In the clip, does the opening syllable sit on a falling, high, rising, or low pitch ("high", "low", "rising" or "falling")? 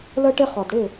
high